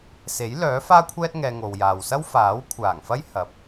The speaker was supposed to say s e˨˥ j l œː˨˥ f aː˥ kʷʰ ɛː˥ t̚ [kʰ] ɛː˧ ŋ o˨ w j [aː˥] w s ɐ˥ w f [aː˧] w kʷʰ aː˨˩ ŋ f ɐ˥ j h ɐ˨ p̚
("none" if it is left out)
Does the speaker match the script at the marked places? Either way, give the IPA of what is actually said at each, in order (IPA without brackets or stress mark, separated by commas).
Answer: ŋ, aː˨, aː˨˥